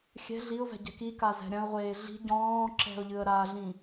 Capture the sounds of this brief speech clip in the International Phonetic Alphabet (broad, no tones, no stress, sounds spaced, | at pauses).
xʲ ɛ̤ ɮ i ʊ̯ v ɛ̤ ɟ ɛ̤ k i k a z ɛ̤ ɾʲ ɐ̃ ʊ̯ ʁʷ eː ɮ i̤ ɟ ɔ̃ː ǁ ɛ̤ ʊ̯ ʎ ɨ ə̯ ɾ a ɮ ĩ